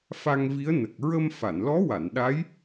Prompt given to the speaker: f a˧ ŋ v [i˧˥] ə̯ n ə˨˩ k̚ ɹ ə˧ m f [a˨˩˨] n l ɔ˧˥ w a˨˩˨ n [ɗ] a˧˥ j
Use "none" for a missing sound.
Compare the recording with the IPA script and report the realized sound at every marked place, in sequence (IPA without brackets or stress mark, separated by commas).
i˧˥, a˨˩˨, ɗ